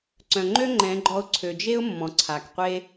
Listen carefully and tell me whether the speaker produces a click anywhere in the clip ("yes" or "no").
yes